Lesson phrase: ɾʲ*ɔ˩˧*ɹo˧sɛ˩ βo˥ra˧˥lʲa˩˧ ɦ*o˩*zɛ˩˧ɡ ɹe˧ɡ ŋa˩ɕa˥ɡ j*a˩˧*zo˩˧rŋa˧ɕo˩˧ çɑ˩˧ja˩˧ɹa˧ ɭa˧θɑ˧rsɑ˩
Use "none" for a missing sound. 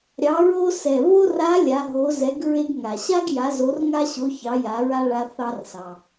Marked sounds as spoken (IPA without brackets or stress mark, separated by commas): ɑ˩˧, o˩˧, a˩˧